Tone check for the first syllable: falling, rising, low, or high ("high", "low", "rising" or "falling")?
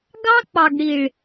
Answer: high